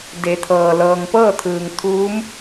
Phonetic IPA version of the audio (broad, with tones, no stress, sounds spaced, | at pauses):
d e˩˧ t̪ʰ ɤː˩ l ɤː˩ ŋ p ɤː˥˨ t̪ʰ ɯː˩ ŋ t̪ʰ uː˧˥ m